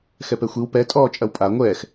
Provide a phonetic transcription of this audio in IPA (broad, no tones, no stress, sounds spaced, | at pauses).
x ɛ p ɛ xʷ i w p ɛ tʼ ɔː t͡ʃʼ ɐ w pʼ a ŋʷ ɛː x